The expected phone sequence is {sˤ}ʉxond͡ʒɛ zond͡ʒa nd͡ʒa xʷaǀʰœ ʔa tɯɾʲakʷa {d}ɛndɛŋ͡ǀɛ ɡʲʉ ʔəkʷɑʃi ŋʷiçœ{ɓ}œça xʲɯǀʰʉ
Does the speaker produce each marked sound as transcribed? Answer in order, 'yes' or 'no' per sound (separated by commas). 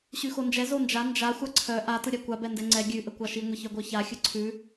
no, no, no